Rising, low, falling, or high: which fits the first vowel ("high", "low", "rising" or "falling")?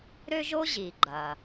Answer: high